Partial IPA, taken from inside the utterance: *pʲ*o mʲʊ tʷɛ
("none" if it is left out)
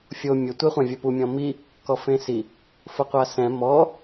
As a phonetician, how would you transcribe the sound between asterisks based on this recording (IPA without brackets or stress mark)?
fʲ